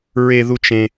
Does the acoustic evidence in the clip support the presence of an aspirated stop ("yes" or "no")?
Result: no